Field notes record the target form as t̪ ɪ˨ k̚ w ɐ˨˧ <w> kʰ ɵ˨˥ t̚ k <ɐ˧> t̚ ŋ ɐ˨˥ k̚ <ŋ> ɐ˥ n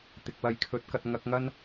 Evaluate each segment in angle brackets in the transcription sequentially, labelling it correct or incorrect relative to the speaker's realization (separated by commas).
incorrect, correct, correct